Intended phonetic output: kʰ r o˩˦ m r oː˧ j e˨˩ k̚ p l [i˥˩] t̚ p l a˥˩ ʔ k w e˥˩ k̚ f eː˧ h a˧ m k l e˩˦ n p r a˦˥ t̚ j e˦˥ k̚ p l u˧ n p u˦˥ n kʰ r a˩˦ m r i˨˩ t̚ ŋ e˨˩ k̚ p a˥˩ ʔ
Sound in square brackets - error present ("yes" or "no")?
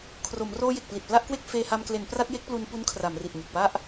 yes